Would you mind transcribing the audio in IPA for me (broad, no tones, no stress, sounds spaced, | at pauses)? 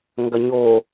ŋ ɡ ɐ ɲ o